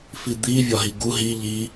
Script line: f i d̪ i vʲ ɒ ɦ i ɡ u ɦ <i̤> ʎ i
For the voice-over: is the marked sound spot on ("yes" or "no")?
no